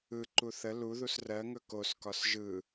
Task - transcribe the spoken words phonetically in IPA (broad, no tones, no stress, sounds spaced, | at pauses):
ɯ ǃ u θ ə l u ð u s r ɜ ŋ ɵ k o s k ɒ s ʒ ɯ